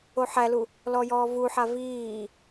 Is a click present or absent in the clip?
absent